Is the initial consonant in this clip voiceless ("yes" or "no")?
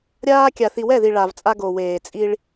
no